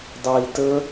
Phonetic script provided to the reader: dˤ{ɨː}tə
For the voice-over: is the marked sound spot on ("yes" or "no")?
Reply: no